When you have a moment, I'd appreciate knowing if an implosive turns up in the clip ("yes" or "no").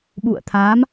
yes